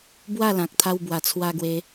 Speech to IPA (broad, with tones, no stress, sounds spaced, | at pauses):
b w a˥˧ l ã˨ k̚ t̪ʰ a˧ w b w a˨˩ t͡sʰ w a˧ ɡ w e˧